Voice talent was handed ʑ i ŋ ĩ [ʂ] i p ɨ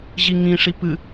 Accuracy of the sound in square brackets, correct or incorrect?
correct